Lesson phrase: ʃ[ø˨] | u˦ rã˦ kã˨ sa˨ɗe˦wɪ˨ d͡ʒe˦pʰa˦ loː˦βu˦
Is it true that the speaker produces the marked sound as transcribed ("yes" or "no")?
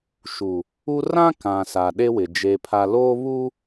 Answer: no